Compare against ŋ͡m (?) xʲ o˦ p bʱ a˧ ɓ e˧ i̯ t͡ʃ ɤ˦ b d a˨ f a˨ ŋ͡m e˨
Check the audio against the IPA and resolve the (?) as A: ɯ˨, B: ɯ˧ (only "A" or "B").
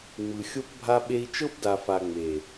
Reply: A